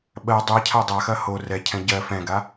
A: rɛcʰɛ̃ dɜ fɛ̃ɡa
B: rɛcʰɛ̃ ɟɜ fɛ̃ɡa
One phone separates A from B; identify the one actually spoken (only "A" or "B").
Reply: B